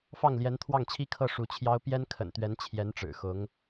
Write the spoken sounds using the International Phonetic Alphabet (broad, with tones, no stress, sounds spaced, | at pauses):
f ɑ˥˩ ŋ l j ɛ˧˥ n t̪ʰ w ɑ˥˩ ŋ t͡ɕʰ i˥ kʰ ɤ˥˩ ʂ u˧˥ t͡ɕʰ j ɑ˥ ʊ̯ p j ɛ˥ n kʰ ə̰˨˩ n t̪ ɥ ɛ˧˥ n t͡ɕʰ j ɛ˧˥ n ʈ͡ʂ ɻ̩˨˩ x ʊ˧˥ ŋ